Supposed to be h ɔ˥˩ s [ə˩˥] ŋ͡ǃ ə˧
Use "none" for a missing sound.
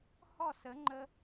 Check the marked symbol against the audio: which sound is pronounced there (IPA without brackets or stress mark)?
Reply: ə˩˥